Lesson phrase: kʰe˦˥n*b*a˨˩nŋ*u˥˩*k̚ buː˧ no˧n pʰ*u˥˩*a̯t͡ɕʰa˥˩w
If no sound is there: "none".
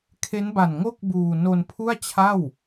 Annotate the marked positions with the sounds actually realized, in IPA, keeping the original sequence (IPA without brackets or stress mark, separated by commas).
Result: b, o˥˩, u˥˩